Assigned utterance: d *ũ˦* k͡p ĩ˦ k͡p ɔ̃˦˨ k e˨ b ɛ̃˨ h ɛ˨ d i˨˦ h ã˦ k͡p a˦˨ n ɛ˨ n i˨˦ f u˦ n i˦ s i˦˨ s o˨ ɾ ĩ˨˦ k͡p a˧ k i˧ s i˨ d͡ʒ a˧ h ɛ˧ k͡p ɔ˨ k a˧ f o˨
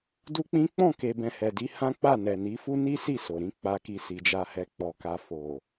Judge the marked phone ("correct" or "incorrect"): incorrect